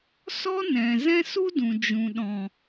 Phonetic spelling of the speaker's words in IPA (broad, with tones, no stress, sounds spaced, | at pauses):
s ɔ˦ n ɛ̃˨ z ɛ̃˦ s u˦ d ũ˨ d͡ʒ ũ˨ ɗ ɔ̃˨